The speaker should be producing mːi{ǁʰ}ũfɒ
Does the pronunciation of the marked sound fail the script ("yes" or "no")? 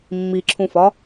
no